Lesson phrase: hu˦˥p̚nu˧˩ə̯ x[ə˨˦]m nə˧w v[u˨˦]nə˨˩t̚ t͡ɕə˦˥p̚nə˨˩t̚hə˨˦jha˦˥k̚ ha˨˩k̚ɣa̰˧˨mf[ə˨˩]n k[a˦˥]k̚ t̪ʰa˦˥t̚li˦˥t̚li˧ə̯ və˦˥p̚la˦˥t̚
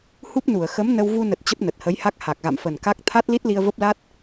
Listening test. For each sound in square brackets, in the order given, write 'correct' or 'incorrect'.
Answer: correct, incorrect, correct, correct

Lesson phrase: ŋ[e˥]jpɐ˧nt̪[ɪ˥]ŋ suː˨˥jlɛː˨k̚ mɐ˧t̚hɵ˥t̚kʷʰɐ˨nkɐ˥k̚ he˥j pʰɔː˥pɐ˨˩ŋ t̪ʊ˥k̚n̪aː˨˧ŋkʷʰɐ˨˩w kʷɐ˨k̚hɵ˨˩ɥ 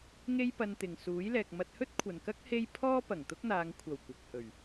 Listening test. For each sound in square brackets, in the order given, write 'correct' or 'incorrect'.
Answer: correct, incorrect

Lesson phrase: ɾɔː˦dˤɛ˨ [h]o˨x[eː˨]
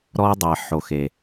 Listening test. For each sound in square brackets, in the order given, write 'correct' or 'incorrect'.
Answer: incorrect, incorrect

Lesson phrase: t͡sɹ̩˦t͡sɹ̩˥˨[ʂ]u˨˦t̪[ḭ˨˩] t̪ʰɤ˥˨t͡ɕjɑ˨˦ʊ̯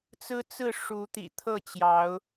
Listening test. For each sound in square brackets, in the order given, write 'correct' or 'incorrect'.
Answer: correct, correct

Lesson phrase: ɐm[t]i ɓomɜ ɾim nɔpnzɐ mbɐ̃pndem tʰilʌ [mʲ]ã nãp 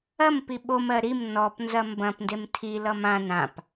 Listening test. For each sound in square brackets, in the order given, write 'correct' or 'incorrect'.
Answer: incorrect, incorrect

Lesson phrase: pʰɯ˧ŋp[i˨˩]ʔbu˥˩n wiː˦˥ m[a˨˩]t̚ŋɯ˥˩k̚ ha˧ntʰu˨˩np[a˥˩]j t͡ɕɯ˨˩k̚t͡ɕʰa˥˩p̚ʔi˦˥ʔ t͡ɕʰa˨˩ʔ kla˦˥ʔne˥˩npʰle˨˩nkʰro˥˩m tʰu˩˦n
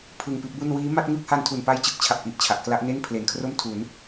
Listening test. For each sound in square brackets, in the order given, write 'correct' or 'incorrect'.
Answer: incorrect, incorrect, incorrect

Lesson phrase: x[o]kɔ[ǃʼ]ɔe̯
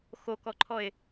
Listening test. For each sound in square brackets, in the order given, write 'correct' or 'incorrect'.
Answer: correct, incorrect

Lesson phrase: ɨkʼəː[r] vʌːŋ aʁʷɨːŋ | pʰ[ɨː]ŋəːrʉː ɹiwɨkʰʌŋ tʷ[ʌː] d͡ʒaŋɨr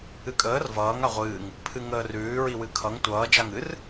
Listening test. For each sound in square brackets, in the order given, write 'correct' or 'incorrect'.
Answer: correct, incorrect, correct

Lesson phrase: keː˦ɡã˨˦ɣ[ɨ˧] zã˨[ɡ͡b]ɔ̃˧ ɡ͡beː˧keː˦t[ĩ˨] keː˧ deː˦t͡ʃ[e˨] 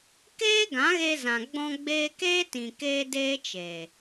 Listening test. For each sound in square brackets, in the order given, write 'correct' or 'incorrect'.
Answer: incorrect, correct, correct, incorrect

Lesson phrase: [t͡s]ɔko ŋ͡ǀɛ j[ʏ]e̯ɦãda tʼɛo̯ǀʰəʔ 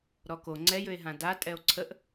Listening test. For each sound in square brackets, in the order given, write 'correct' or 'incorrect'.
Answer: incorrect, correct

